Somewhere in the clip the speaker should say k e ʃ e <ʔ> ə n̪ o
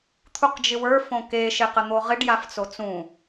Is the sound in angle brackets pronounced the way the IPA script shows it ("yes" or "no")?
no